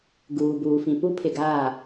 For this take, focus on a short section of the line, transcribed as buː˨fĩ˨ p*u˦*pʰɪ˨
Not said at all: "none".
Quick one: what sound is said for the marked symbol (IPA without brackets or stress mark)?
u˦